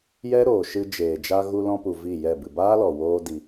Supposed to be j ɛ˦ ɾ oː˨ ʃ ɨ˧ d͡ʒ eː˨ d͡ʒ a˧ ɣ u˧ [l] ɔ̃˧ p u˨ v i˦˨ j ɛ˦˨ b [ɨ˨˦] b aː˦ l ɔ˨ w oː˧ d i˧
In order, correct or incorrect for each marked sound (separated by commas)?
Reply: correct, incorrect